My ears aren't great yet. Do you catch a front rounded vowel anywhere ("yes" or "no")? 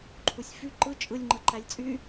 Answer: yes